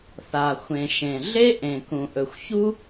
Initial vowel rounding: unrounded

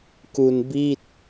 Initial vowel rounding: rounded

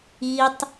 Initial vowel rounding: unrounded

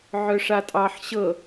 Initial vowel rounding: rounded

